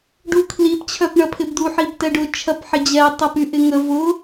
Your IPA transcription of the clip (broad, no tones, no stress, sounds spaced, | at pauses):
ɖ u kʰ l i p t͡ɕʰ œ p ɳ ɐ pʰ ɪ b d̪ u ħ i b t ɛ ɖ ʊ t͡ʃʰ ɐ p ħ ɪ d͡ʑ ɛ tˤ ə p y ʔ ɪ ŋ ə v ʊ